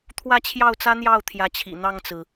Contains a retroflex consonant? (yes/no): no